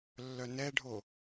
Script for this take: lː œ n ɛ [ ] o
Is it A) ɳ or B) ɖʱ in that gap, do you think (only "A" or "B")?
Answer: B